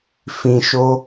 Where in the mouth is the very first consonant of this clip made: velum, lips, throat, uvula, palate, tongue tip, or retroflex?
lips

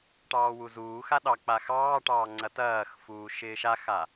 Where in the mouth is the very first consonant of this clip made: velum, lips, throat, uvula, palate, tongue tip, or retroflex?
retroflex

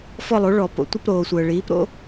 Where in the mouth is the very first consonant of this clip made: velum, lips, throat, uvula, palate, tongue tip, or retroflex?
lips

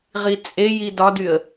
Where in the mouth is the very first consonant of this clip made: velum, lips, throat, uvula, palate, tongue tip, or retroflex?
uvula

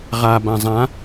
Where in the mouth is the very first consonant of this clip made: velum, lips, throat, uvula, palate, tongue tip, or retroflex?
uvula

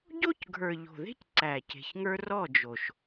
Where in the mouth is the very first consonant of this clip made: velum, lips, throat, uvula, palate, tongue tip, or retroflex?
palate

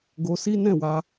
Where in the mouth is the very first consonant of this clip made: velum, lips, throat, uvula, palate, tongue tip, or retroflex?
velum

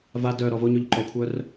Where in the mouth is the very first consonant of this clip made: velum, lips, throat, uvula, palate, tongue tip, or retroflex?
lips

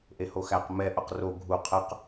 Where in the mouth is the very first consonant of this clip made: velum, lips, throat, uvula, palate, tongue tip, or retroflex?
throat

